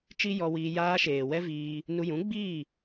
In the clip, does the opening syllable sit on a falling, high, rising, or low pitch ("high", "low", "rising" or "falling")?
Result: high